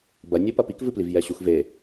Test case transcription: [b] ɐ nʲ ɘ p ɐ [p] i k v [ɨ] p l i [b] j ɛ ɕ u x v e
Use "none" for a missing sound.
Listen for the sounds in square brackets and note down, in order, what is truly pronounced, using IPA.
b, p, ɨ, v

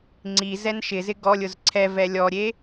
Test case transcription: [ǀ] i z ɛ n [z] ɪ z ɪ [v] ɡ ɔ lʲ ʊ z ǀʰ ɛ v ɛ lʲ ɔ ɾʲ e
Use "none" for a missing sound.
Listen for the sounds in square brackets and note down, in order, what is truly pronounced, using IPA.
ŋ͡ǀ, ʃ, none

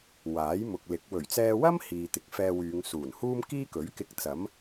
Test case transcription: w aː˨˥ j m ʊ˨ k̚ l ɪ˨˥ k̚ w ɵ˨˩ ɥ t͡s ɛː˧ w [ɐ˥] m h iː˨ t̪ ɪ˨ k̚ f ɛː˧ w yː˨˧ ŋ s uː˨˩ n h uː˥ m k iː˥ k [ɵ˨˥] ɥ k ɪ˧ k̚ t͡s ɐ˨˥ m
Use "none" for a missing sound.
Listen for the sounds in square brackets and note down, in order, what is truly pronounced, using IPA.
ɐ˥, ɵ˨˥

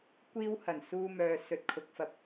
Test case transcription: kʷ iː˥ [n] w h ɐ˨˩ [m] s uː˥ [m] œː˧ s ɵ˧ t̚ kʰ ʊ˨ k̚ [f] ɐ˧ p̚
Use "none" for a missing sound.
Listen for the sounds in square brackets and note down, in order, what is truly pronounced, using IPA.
none, n, m, f

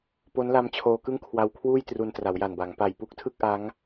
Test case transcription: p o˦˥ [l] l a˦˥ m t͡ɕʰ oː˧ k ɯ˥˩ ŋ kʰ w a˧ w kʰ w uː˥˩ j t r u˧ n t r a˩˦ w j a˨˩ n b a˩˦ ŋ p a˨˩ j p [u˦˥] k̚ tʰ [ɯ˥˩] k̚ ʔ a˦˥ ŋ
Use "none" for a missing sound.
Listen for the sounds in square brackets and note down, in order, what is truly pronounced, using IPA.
n, u˦˥, ɯ˥˩

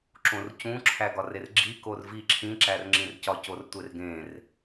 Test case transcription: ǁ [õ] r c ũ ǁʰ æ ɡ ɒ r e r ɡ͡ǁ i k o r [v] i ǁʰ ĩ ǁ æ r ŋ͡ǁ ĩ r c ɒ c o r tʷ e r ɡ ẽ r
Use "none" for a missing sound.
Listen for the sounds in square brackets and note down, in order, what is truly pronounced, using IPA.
õ, v

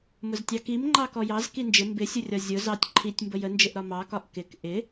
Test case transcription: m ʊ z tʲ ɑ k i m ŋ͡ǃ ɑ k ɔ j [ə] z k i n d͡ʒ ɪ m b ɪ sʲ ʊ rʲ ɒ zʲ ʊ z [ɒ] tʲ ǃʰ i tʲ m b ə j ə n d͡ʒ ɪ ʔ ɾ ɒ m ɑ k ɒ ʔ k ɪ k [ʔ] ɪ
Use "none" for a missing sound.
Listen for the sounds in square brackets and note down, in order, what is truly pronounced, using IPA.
ɑ, ɑ, ʔ

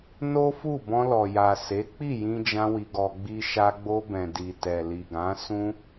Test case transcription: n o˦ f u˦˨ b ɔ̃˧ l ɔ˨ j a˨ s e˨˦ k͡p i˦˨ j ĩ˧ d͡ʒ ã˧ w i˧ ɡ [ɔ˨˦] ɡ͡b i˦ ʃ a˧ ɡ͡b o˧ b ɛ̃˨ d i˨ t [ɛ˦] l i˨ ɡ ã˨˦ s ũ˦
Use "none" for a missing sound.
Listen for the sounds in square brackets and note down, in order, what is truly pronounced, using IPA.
ɔ˧, ɛ˨

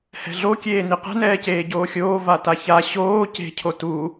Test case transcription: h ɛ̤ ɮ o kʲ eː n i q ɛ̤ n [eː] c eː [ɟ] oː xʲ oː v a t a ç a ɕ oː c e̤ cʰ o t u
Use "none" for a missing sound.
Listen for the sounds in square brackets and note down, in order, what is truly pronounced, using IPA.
ɛː, ɟ

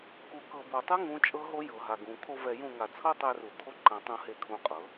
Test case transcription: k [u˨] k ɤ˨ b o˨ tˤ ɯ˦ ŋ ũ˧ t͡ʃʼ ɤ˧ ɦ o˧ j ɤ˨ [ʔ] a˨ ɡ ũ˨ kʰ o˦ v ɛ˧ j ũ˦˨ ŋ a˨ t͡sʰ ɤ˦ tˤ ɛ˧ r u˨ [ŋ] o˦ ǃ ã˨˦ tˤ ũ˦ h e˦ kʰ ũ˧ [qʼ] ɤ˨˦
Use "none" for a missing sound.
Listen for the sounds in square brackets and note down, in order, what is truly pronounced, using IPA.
u˨, ɦ, kʰ, qʼ

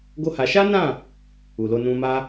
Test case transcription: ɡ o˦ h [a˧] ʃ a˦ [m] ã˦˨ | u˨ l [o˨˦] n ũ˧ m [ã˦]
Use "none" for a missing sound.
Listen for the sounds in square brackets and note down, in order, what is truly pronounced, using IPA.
a˧, n, o˧, a˦

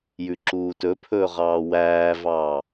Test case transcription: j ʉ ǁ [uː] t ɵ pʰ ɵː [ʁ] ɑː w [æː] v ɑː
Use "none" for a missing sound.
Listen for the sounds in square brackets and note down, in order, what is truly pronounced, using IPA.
uː, ʁ, æː

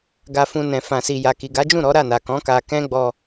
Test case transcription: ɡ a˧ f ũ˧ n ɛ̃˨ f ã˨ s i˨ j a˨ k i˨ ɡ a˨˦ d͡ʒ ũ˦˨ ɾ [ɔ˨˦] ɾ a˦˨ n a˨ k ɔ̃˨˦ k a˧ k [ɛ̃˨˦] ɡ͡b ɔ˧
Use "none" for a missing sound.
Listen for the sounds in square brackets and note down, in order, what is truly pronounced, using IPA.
ɔ˨˦, ɛ̃˦

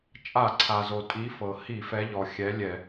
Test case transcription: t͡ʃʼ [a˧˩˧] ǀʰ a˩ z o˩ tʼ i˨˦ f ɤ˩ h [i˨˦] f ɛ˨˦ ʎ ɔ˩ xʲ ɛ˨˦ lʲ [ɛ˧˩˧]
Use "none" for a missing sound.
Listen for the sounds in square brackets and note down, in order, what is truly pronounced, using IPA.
a˧˩˧, i˧˩˧, ɛ˧˩˧

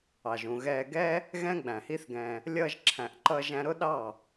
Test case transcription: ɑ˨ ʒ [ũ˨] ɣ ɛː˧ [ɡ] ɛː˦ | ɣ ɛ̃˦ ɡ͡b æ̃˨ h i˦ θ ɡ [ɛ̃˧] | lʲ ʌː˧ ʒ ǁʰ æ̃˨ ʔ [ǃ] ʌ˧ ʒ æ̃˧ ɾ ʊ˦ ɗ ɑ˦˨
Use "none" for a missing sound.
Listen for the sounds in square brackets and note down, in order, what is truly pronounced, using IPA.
ũ˨, ɡ, ɛ̃˧, ǃ

